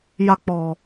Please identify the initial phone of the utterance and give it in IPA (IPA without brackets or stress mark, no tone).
j